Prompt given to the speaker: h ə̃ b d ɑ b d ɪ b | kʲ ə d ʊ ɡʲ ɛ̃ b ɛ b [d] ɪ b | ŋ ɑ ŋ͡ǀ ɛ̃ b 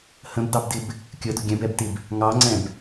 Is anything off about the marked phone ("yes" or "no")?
yes